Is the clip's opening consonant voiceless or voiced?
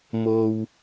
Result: voiced